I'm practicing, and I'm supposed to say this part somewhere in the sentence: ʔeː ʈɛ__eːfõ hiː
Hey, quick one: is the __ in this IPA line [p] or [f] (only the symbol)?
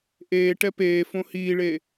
p